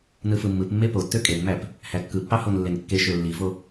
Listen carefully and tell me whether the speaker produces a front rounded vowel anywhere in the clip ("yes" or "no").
yes